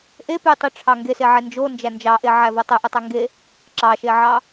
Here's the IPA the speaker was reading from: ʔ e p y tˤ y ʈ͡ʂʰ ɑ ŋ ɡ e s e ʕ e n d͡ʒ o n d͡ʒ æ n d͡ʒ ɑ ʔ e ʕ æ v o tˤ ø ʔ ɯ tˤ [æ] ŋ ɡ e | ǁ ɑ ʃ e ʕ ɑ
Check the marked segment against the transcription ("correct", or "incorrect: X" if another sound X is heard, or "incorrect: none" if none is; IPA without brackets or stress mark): correct